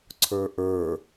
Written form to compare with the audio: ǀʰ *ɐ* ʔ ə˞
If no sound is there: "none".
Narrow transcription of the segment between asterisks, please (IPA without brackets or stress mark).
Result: ə˞